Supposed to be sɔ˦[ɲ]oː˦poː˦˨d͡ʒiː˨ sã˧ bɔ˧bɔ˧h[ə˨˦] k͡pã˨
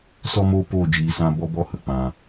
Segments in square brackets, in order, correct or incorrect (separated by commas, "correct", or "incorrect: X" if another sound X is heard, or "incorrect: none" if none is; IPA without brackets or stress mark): incorrect: m, incorrect: ə˨